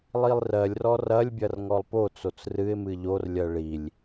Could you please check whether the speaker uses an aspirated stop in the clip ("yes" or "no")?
no